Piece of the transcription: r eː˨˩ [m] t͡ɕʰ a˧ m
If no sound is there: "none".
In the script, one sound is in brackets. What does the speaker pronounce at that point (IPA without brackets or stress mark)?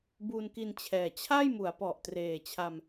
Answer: none